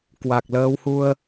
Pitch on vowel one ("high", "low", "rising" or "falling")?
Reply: low